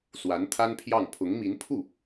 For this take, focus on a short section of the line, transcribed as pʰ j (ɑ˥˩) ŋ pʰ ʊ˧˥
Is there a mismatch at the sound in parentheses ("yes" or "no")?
no